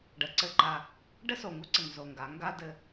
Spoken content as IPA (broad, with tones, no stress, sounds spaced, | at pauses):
ɖ ə˨ ǀ ɘ˦˨ ǃ a˦ | ɖ ɘ˦ s o˨ ŋ u˦ ǀ ɘ˨ ŋ z o˨ ŋ ɡ a˨˦ ŋ ɡ a˦ d ɘ˦